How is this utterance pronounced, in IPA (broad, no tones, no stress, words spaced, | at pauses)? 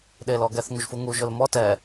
ɗeːlɔɡɛθ ŋuʒfuŋu ʒʊlmɔ tɛ